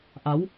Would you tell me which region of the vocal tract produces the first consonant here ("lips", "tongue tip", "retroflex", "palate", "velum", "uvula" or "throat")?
throat